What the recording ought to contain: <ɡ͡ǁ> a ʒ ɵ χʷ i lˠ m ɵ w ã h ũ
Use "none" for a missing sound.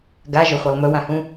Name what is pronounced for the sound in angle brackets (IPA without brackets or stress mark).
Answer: ɡ